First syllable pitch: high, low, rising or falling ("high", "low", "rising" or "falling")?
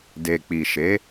low